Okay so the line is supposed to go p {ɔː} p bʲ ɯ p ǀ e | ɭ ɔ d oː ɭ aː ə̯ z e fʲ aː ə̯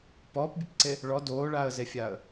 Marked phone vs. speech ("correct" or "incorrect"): correct